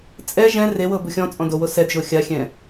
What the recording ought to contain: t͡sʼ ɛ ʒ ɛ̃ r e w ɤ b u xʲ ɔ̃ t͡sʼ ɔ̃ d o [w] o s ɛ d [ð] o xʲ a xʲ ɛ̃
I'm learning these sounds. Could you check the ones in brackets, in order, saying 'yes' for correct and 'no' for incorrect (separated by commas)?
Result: yes, no